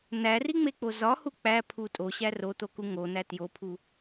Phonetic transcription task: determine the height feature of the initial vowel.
low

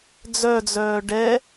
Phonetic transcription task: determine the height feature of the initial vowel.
mid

